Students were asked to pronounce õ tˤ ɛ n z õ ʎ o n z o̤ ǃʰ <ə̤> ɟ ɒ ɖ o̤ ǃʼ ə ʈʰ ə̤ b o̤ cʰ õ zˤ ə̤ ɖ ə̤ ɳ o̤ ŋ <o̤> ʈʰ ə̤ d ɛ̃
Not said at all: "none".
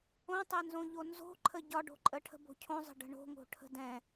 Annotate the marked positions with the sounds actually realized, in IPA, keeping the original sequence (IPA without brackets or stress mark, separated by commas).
ə, o̤